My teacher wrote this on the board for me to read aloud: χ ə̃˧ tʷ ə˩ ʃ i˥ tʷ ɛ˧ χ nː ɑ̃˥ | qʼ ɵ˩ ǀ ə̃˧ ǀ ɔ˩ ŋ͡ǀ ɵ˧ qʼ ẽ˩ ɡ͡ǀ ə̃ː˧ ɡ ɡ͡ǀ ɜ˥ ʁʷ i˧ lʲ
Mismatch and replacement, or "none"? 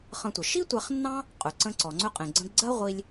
ə̃ː˧ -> ə̃˧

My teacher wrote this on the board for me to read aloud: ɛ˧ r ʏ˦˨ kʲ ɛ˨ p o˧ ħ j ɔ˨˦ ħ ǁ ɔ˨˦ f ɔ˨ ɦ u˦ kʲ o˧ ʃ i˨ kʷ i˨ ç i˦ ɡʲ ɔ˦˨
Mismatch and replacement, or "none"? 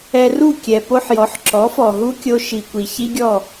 ʏ˦˨ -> u˦˨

